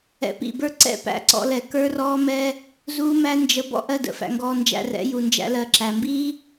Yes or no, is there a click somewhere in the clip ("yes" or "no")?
yes